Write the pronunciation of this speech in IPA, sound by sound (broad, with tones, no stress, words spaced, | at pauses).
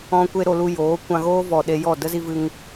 ɔ̃˧ kʷe˦ɾo˧lu˧ joː˨˦kʷã˧ɣoː˦vɔ˨ ɗe˧jɔ˦˨ də˦zi˧vɨ˧ŋ